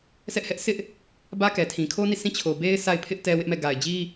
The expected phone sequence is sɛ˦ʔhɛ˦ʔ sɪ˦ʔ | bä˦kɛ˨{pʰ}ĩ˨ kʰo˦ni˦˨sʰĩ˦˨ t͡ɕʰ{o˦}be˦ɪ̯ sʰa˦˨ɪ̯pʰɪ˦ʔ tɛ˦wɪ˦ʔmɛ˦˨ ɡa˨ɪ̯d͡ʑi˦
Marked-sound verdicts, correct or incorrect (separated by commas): incorrect, incorrect